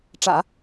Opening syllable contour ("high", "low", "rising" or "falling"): low